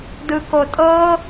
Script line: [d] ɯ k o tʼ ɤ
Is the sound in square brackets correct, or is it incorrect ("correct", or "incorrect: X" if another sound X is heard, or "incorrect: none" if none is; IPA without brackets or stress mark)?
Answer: correct